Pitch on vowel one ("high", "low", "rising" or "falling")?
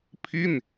falling